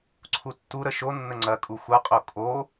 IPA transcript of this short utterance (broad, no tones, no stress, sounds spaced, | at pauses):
ǀʰ u tː u ɾ ə ʃ o nː ə ŋ͡ǀ ɐ kʼ u xʷ ɐ qʼ o kʼ o